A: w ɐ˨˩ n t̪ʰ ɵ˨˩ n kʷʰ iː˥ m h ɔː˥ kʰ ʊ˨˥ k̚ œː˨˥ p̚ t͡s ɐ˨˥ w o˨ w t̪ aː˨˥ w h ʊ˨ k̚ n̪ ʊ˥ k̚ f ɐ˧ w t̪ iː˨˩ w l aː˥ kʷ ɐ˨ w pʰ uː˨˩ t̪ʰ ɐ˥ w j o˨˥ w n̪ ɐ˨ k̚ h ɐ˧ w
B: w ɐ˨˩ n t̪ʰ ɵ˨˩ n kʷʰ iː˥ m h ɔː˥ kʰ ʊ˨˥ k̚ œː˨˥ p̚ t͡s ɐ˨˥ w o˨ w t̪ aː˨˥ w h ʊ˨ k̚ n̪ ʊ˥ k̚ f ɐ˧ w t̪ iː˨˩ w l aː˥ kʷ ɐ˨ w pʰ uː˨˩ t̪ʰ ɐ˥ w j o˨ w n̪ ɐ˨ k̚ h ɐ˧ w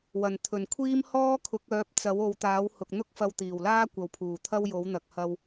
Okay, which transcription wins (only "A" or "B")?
A